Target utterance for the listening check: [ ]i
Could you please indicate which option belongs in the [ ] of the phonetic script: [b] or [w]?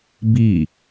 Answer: b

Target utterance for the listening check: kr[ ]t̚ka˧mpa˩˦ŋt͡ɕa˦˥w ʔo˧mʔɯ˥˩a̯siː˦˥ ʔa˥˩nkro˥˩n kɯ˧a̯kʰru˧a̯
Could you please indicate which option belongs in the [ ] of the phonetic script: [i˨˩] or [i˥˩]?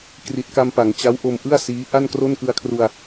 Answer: i˨˩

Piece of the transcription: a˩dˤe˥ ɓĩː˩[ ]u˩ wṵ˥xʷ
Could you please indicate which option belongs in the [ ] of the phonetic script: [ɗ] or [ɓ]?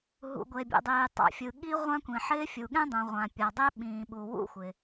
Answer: ɓ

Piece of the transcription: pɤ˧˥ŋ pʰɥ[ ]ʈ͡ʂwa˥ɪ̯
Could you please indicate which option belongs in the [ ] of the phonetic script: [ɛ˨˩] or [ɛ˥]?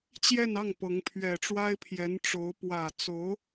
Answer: ɛ˨˩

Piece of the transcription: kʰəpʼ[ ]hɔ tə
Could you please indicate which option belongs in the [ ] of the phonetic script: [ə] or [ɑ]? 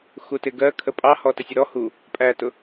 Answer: ɑ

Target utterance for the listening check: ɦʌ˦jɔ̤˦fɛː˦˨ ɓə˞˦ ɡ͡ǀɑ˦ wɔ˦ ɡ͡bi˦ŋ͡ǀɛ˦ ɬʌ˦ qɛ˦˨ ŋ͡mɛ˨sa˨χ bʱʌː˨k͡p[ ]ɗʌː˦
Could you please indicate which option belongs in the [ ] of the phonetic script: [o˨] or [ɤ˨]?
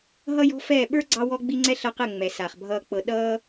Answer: ɤ˨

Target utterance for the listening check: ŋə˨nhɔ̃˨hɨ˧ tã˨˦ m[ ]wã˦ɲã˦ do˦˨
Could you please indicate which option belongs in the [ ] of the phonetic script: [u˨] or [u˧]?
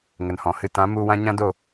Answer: u˧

